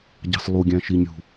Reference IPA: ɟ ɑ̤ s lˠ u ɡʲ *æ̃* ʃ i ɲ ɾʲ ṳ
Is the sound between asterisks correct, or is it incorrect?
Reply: correct